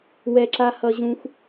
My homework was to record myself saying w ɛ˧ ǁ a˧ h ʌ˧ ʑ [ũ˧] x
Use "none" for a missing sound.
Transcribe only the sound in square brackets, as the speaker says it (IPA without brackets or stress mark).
ũ˧